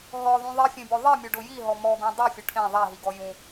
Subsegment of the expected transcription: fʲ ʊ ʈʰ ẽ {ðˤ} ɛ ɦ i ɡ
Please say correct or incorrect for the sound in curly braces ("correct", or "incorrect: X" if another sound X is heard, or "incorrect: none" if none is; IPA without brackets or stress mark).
correct